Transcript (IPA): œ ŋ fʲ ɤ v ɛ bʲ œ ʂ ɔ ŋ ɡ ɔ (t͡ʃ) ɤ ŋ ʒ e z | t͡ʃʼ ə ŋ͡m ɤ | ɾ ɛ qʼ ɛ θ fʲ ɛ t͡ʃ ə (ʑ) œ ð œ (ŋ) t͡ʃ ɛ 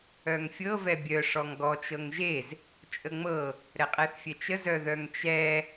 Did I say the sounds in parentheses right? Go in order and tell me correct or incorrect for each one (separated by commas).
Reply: correct, incorrect, correct